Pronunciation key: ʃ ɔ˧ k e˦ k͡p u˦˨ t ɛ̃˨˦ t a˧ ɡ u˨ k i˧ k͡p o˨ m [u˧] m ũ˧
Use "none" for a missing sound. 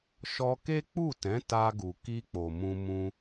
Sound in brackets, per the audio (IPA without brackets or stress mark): ũ˧